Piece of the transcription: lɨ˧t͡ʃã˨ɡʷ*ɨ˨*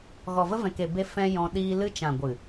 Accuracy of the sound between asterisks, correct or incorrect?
correct